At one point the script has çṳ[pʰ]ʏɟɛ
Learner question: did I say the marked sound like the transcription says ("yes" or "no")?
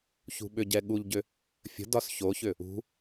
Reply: no